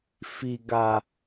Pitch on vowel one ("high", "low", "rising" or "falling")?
low